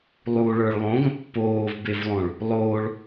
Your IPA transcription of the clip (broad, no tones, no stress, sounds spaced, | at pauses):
lˠ u ɭ ə˞ ɭ lˠ õ ɡ ə̃ pː oː v b e v lˠ õ ɭ | lˠ oː ɭ